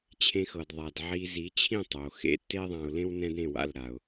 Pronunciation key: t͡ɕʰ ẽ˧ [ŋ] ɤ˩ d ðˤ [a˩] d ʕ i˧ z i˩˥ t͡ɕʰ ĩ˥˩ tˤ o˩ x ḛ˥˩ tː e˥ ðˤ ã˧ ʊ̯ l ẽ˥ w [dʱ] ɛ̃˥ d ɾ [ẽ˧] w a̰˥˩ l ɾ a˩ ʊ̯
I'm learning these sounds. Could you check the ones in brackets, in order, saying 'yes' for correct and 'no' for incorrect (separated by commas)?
no, yes, no, no